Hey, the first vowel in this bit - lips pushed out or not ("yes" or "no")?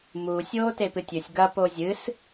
yes